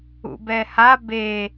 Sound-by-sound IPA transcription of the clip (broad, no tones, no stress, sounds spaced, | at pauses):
ṵ b ɛ h a b e